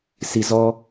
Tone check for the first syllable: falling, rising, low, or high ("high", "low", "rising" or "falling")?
low